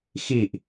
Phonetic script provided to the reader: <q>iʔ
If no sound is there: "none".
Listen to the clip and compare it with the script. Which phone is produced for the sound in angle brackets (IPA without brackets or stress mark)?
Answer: x